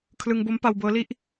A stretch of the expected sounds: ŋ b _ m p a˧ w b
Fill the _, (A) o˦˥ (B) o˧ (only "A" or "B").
A